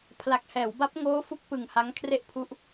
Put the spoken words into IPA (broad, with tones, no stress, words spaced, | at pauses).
pʰla˨˩k̚hɛː˩˦wba˦˥p̚ ŋoː˦˥fu˦˥k̚ pɯ˧ŋ ha˦˥ŋkʰre˥˩ʔpʰu˦˥ʔ